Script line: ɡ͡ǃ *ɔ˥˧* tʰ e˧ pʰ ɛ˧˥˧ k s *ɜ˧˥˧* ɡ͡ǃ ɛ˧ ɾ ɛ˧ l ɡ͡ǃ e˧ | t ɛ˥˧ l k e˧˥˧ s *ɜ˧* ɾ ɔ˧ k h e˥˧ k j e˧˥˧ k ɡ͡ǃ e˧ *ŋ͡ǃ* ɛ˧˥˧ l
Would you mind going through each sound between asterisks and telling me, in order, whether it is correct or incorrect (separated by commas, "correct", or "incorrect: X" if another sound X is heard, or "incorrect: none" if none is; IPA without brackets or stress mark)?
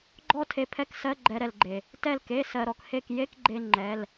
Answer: correct, correct, correct, correct